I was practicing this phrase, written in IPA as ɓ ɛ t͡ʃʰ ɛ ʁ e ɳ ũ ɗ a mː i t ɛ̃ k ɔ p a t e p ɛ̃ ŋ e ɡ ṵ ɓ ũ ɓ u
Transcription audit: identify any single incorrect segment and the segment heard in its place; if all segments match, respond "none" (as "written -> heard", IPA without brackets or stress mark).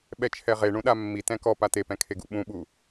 ŋ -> kʰ